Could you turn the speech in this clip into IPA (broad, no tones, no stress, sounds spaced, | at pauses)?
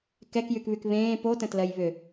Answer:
k ɛ k j y k β y k β ẽː p o t ə̃ t l ɜ j β ʏ